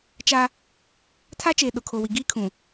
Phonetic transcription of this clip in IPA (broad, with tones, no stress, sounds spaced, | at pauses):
t͡ʃ a˦ | tʰ a˦ t͡ʃ eː˨ ɗ ʊ˨ kʰ o˨ w i˨ ɡ i˦ kʰ ũ˨